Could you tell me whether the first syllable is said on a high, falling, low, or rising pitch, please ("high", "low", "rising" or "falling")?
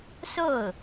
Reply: falling